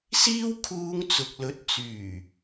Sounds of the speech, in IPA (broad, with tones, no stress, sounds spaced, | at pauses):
s iː˥ w kʰ uː˧ ŋ t͡s ʊ˨ k̚ l ɵ˨˥ t̚ t͡s yː˨˩